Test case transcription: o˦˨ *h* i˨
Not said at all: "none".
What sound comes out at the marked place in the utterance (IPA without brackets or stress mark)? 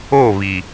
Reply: β